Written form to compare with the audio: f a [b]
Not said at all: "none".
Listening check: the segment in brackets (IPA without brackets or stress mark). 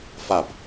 b